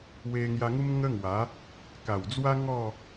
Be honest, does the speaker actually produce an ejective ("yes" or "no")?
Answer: no